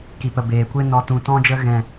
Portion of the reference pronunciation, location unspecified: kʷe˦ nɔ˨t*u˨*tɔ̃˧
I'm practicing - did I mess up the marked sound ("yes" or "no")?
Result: yes